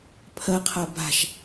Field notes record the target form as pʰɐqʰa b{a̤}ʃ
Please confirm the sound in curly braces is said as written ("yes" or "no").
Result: yes